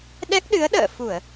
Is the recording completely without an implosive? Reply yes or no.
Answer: no